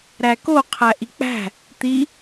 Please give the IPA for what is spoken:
ɾæko qʰæʔik͡pæ̤ | t̪i

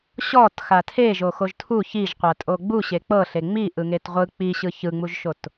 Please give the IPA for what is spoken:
ɕɔtxa tʰeʒo xoʒtʰu çiʒqʷatʼo ɡ͡bu ɕek͡pɤ ɬeŋ͡mi ʔɯŋetʁʷɯ k͡piɕɯ çɯŋ͡muʒʃot

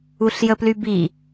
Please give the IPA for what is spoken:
uɬjəplybi

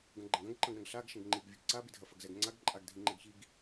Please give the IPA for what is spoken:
ɡɐ̃ɡ͡ǃɐ̃ɡɐ̃ɡǃɐ̃ɡ ɾɐ̃ɡɬaɡ ʃɐ̃ɡŋ͡ǃiɡ vʲɐɡǀabidʱɐ fɐɡzɛɡŋ͡ǀaɡ ǃʼaɡ dʱĩŋ͡ǃɛɡçiɡ

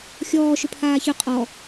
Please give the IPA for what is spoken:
xʲɔːʃʏ pʰaːçʏ qʼɔ

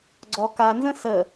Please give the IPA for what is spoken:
ɡ͡ǀɔ kanzə̃ sə

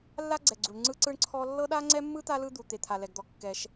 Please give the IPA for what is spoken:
lːa˥ɡ͡ǀɛ˩ɡ͡ǀu˩ɳ ŋ͡ǀɯ˥ǀɯ˥ɳǀʰɔ˥ lːɤ˥ɗa˥ŋ͡ǀɛ˥mːɯ˥ t̪a˥lɯ˥ d̪u˩t̪e˩t̪ʰa˩ lɛ˩ɡd̪ɔ˩ kːɛ˩ʃ

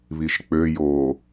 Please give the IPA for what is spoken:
βiʃk͡pø jo

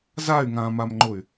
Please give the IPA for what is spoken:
zay̯ŋãːmamŋ͡ǃʊy̯

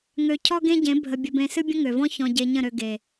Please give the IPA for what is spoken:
ŋø˧ cʰɔ˦ɡẽ˦ɟẽ˨˦ bʱə˧bʲə˧bẽ˧ sɨ˦bʲə̃˦ŋø˨vɔ̃˦ çɔ̃˧ɟe˧ ɲə̃˦˨ɾø˧ ɡe˨

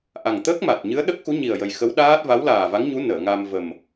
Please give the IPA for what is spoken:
ʔa˨˩ŋt̪əː˦˥k̚ma˨˩t̚ɲɨ˧˥ə̯ ɗə˦˥k̚xu˧˥ɲi˨˩ə̯jə˨˩j xə˧˥wɗaː˦˥t̚va˧˥w laː˨˩va˧˥ŋɲu˧˥ nəː˨˩˨ŋa˧m və˨˩m

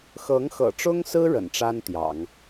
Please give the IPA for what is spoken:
xɤ˧˥ŋxɤ̰˨˩ʈ͡ʂʊ˥ŋsɹ̩˥ ɻə̰˨˩nʈ͡ʂa˥n t̪jɑ̰˨˩˦ŋ

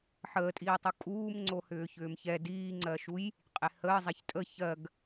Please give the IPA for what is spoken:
ħəːtʼiːtˤu kʼuːmŋ͡ǀo hʏːçʏːmçɛ diːŋ͡ǀɜʃuj | qʼehəː zˤɛçtʼə çɜɡ

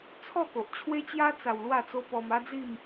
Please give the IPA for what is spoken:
t͡sʰɔ˥˧ko˨ʔt͡ɕʰwe˦t͡ɕja˦ t͡sa˧wlwa˥˧t͡so˦ pɔ˧ma˦d͡zi˥˧m

